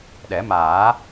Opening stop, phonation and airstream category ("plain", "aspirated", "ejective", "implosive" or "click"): implosive